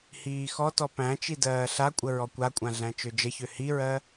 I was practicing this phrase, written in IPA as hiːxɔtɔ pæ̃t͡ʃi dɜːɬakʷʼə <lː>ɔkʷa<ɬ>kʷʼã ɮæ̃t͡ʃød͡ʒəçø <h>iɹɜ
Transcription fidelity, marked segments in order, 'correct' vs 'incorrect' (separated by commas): incorrect, incorrect, correct